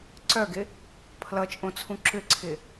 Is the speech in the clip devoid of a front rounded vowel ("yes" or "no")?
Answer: no